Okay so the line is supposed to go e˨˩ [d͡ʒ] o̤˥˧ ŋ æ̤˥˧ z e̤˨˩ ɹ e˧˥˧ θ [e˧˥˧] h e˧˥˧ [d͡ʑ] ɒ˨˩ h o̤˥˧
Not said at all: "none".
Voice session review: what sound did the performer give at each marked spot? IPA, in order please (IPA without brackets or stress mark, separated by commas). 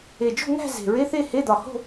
d͡ʒ, e˥˧, d̪